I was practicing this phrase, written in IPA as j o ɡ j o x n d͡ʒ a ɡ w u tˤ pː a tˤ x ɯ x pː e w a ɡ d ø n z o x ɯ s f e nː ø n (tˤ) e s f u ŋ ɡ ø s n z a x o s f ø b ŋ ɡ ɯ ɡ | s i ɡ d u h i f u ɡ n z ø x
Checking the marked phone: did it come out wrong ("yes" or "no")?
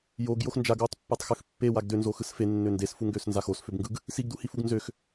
yes